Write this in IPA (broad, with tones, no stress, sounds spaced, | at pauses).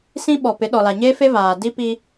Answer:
s ĩ˦ ɓ ɔ˨ p ɪ˨˦ ɗ ɔ˨ l a˨ ɲ eː˦ f e˦ v aː˨ d i˦ p i˦